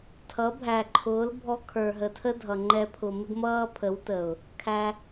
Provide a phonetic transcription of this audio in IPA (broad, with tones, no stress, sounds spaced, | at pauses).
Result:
tʰ ʌ˨˦ bʱ æ˨ ǃʰ ʊː˨˦ l bʱ ɔ˧ kʰ ə˞˨ ɦ ə˨ tʰ ə˦ dʱ ʌ˨ ŋ͡ǃ ɛ˧ pʰ ʊ˨ m ɪ˦ ɡ m ʌː˦ pʰ ə˨˦ w t ə˨ ʊ̯ | kʰ æ˧